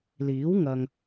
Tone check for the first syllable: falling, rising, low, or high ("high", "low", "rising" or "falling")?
rising